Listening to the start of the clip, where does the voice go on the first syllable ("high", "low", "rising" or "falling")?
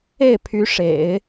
falling